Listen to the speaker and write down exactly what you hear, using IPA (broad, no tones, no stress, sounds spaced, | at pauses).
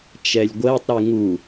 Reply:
t͡ʃ ɛ lʲ ɡʷ ɜ tˤ ɾ y ŋ u